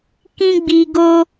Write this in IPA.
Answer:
k ĩ˦ ɡ͡b i˧ ɡ o˦

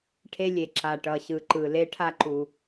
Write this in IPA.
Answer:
ʈʰ e˦ lʲ e˨ ǁ a˨ ʈ ʌ˨ ɕ ɯ˨ ǃ ɯ˨ l e˦ ʈʰ a˦ ǃ u˨

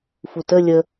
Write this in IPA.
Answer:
f u t ə lʲ ə

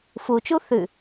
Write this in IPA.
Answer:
f u t͡ʃ u θ ʉ

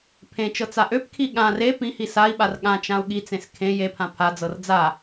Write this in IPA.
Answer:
pʰ ẽ t͡ʃ ɤ t͡s a ʔ ø p kʰ i ɠ ã r e p ĩ h i s a i̯ ɓ a r ɠ ã t͡ʃ ã u̯ ɠ i t͡s ẽ s kʰ ẽ j e pʰ ã pʰ a d͡z ɤ r d͡z a

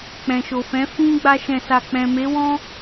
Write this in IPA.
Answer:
k͡p ɛ̃˨ ʃ o˨ f ɛ̃˨˦ f ĩ˦ ɡ͡b a˦ ʃ ɛ̃˧ s a˧ k͡p ɛ̃˨ m e˨˦ w ɔ̃˦

